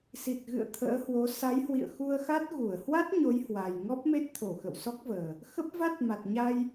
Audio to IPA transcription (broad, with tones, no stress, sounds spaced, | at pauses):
s i˨˩ t̚ ɣ ɨ̰˧˨ ə̯ t̪ʰ ə̰ː˧˥ h w o˨˦ s a˨˦ j h w ḭ˧˨ ə̯ x u˧ ə̯ x a˦˥ t̚ ɣ u˧˩ ə̯ h w a˦˥ t̚ ɲ o˨˦ j h w a˨˩ j ŋ ɔ˦˥ p̚ m e˦˥ t̚ t̪ʰ o˧˩ x ə̰˧˨ w s ɔ˦˥ k̚ v əː˨˩ | x ə˦˥ p̚ v a˦˥ t̚ m a˨˩ t̚ ɲ a˧ j